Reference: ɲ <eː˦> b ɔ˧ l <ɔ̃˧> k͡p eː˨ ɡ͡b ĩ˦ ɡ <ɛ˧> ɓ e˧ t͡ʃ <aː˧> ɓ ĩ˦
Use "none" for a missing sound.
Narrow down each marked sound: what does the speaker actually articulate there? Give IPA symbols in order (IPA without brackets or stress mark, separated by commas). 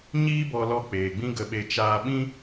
iː˦, ɔ˧, ə˧, aː˧